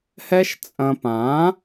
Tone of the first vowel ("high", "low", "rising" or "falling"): high